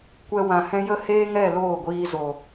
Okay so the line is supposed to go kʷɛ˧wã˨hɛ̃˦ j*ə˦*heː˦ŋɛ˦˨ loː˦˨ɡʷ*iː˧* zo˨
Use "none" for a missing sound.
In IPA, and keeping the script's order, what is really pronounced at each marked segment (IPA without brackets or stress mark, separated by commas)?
ə˦, iː˧